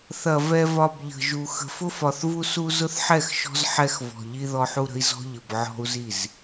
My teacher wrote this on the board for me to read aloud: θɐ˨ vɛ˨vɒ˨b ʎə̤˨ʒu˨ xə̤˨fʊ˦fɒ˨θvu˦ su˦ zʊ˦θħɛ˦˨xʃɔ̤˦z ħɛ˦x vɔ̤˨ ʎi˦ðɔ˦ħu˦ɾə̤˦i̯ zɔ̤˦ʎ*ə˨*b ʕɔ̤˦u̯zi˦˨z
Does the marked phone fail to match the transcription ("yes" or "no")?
no